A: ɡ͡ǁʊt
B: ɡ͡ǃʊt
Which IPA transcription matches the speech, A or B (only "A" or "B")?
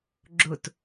A